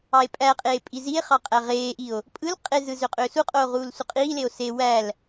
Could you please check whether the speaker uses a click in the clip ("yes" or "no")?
no